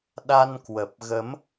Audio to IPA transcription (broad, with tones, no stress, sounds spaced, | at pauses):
ɗ a˧ n k w ə˨˩ p̚ ɣ ə˨˦ m